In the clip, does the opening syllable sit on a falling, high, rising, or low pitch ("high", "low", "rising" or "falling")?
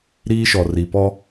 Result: high